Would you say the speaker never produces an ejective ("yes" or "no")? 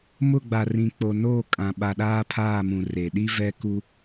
no